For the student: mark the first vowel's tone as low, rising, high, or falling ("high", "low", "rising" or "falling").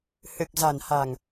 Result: low